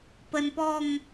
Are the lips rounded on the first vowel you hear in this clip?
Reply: no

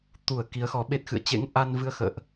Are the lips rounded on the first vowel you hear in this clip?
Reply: yes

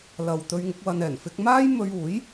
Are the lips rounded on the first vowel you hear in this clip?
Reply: no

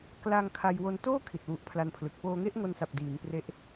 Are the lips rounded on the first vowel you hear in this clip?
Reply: no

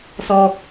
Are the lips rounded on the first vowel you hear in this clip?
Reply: yes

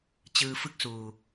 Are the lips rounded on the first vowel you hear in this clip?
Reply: no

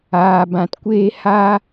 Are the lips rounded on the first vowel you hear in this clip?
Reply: no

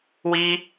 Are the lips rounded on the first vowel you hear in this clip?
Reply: no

